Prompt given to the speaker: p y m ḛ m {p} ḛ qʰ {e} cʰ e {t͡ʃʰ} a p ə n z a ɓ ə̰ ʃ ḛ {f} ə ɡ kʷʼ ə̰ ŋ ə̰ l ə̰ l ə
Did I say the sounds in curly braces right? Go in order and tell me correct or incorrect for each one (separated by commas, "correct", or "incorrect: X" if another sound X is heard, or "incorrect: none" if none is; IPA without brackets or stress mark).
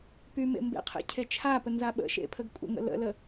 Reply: incorrect: b, incorrect: ḛ, correct, incorrect: pʰ